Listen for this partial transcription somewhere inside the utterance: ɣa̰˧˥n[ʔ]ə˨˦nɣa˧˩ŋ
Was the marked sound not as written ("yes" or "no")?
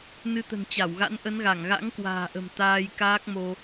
no